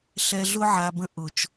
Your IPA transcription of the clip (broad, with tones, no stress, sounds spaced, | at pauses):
ɬ ɛ˨ ɮ ʊ˦ ʕ a˨ b ə̃˦ ʔ ʊ˨ t͡ʃ